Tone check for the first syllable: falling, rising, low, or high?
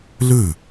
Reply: falling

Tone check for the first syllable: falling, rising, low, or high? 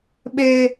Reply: high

